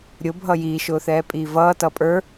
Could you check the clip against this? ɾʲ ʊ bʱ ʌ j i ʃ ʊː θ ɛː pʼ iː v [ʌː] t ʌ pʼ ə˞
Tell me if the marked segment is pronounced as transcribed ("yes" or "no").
yes